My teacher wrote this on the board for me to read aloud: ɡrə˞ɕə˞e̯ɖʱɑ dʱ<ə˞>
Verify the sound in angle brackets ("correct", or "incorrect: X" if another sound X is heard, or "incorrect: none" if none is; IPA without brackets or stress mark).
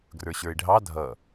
incorrect: ʌ